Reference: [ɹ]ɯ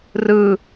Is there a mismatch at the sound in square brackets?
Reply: yes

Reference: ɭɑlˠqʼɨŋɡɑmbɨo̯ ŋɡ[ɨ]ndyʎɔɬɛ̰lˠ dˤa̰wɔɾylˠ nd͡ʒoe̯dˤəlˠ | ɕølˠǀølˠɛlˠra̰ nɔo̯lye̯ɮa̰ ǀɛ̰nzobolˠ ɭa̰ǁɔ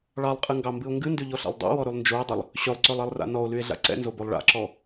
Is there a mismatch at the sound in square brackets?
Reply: no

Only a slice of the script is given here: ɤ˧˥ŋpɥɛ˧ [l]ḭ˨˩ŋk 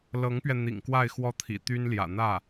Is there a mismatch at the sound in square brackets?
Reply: yes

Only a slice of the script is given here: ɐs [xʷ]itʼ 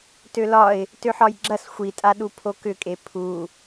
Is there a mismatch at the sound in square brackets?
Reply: no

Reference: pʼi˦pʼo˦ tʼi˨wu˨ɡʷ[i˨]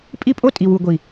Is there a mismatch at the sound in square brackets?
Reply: no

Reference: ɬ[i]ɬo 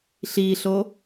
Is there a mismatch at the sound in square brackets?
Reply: no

